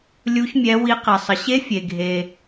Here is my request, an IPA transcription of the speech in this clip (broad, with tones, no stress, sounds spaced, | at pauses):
lʲ u˧˥ ç mʲ ɛ˧˥ w i˧˥ q e˨ sˤ ə˨ ɕ e˧˥ fʲ e˨ ɡʱ e˨